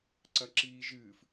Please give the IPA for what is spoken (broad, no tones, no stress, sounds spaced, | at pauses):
ǀ ɐ ǁ iː ʒ ɨː f